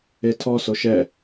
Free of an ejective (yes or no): yes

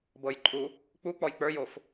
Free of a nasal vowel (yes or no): yes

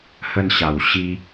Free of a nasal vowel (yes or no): yes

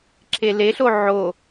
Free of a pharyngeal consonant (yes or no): no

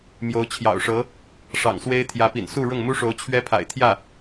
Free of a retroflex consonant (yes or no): no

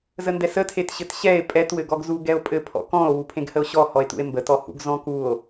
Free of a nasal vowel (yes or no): no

